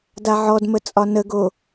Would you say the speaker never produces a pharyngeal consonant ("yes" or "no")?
no